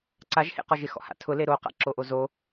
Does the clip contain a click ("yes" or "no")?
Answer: yes